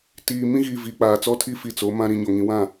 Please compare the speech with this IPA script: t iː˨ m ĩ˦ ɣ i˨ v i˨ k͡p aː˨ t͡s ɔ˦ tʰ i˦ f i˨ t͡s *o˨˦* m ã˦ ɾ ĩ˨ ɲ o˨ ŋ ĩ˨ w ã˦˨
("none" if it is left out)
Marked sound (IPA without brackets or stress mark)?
o˨˦